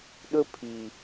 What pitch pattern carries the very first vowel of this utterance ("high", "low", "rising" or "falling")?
high